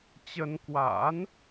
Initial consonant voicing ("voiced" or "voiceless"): voiceless